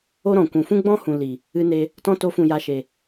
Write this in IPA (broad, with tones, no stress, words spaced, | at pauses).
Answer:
o˦ɾɔ̃˨kʷũ˨ fũ˦ɡ͡bɔ̃˦hũ˨ li˨ | ɨ˧ne˧ | tɔ̃˧to˨˦fũ˨ ja˧ʃe˨